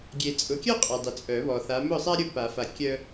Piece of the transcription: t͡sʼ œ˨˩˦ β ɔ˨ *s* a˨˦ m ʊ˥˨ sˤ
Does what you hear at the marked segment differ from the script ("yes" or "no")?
yes